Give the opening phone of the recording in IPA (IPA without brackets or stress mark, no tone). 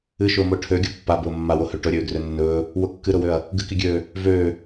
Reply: ɨ